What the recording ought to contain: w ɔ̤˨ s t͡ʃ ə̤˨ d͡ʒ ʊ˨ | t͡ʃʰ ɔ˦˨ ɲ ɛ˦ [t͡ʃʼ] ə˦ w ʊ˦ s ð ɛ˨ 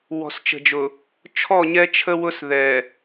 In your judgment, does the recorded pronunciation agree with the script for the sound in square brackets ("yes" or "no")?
no